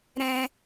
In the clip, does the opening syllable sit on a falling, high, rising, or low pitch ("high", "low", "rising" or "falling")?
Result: high